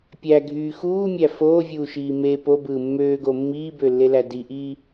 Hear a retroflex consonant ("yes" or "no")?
no